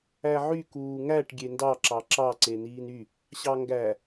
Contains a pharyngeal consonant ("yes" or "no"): yes